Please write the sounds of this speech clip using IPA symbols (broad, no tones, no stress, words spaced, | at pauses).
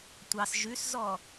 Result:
tʷɑs ʒʉszɔ